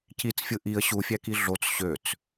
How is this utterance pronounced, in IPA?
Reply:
c i t͡s fʲ ɯ ʔ i ə̯ ɕ u fʲ æ k i ɮ o t͡s ɕ ø t͡s

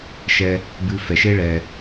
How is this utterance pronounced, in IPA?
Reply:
ʃ ɛ˧ | b ɨ˧ f ɛ˩ ʃ e˥ ɭ ɛ˩

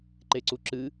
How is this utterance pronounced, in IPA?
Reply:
ǃ e ǀ u ǁ ɨ

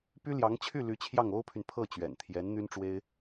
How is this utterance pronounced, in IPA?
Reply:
p y˥ l j ɑ˧˥ ŋ t͡ɕʰ y˥˩ l y˧˥ t͡ɕʰ j ɑ˥˩ ŋ o˥ ʊ̯ pʰ y˨ n pʰ ɤ˥˩ t͡ɕ ɥ ɛ̰˨˩ n t̪ʰ j ɛ˧˥ n n̪ y˥ n ʈ͡ʂ w e˥ ɪ̯

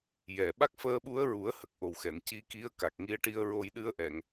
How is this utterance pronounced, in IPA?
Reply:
j ɛ˨˩ ɓ a˦˥ k̚ f əː˧ ɓ u˧˥ ə̯ ɹ u˨˩˦ ə̯ h ə˨˩ k̚ ʔ o˨˩ w x ɛ˨˩˨ n c i˧˥ k i˧˥ ə̯ k a˨˩ k̚ ŋ i˧ ə̯ ʈ i˧ ə̯ ɹ o˧ j ɗ ɨ˧ ə̯ ʔ ɛ˨˩˨ ŋ

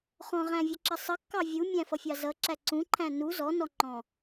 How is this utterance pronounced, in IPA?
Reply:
χ ɔ̃ ʁ æ̃ vʲ ʌ ǁ ə sˤ ə kː ɑ vʲ u mʲ æ̃ f ʌ fʲ ɑ z ʌ ǁ æ ǀ ũ ǃʰ æ̃ n u z ɔ n ɔ ŋ͡ǃ ɔ̃

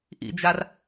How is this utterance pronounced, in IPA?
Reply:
ʔ ḭ d͡ʒ a r

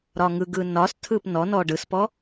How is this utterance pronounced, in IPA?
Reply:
ɾ ɒ ŋ ɯ ɡ ɯ n ɒ s tʰ ɯ p n ɔ n ɔ ɖ ɯ s p ɔ

